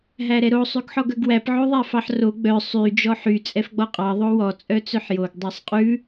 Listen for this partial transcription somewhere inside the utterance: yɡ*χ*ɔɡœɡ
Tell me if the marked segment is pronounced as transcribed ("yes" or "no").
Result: no